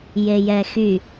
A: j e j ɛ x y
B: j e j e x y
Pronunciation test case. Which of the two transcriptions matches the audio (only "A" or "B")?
A